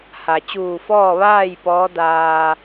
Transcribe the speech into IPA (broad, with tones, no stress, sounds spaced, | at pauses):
h a˩ t͡ɕ uː˧˩ f ɔː˥˨ ʋ aː˥˨ j p ɔː˧˥ d aː˧